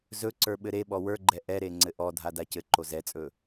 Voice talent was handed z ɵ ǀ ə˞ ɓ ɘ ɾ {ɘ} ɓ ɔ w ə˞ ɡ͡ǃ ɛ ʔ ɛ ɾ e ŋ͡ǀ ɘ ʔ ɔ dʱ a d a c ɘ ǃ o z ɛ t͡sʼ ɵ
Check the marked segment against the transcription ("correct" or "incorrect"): incorrect